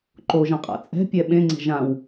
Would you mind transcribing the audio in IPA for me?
ǃ o ʒ ɐ̃ qʼ a̰ t͡sʼ ɛ̤ pʲ ɛ ɓ ẽ ŋ͡ǀ ɛ̤ ʒ ã w

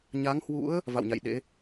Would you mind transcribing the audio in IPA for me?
ɲ a˨˦ ŋ h w ṵ˧˥ ə̯ | v a̰˧˨ w ɲ a̰˧˨ j ɗ ḛ˧˥

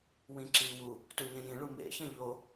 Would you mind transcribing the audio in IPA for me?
w ĩ ǁ iː w u | t u ɲ ẽ j ĩ ɭ u m ḛ ç ɐ̃ ʎ o

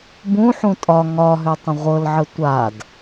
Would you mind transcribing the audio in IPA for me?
b ũ ħ ũ tʼ ɒ ŋ ɒ ɦ ʏ tˤ ə̃ ʁʷ ɤ l ʕ ə tʷ a d

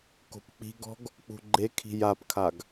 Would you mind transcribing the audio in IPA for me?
k o̤ p k͡p i̤ ɡ ɔ̤ ɡ | k͡p ṳ ɡ͡ǃ e kʰ i̤ j a p kʰ a ɡ

